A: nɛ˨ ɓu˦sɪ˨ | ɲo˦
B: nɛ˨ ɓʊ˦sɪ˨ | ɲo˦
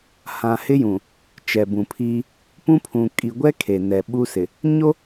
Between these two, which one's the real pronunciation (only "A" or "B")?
A